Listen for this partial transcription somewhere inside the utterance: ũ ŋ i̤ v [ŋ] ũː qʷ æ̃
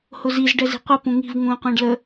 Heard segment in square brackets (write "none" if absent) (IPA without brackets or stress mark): ŋ